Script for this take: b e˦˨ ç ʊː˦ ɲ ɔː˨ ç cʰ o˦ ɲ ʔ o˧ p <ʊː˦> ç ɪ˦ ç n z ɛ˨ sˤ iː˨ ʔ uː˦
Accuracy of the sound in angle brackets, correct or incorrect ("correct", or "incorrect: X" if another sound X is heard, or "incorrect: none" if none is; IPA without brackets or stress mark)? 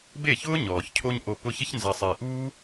incorrect: ʊ˦